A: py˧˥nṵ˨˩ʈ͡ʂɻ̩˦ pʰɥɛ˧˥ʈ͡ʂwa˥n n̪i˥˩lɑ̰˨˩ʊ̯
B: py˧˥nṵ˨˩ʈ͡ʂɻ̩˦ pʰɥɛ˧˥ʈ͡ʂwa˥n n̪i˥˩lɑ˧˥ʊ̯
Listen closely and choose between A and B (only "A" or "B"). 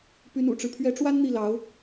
B